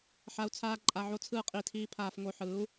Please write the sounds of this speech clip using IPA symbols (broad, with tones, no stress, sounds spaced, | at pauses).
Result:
ħ a˧ u̯ t͡sʰ aː˦ ǃʼ a˧ ʕ o˦ t͡sʰ ɯː˦ qʼ i˧ tʰ iː˦ pʰ aː˧ f ŋ o˧ ħ ɯː˨˦ u̯